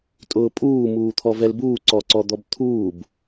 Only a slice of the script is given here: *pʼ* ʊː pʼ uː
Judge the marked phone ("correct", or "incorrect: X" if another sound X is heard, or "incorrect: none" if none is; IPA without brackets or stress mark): incorrect: tʼ